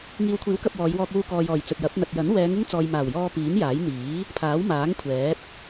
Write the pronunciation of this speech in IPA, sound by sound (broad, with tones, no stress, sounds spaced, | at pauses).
ŋ iː˨ w kʷʰ iː˨˥ w k ɐ˧ p̚ w ɔː˨˧ j w ɔː˧ k̚ w uː˧ k ɔː˨ j ɔː˨˩ j t͡s ɵ˨ t̚ j ɐ˨˥ p̚ n̪ ɐ˨ t̚ j ɐ˨˥ n w ɛː˨˧ ŋ ɪ˥ ŋ t͡s ɔː˨ j m aː˨˩ w j ɔː˧ p iː˨˥ n j aː˨˥ j n̪ iː˨˥ | pʰ aː˨˥ w m aː˨˥ ŋ kʷʰ ɛː˨˥ p̚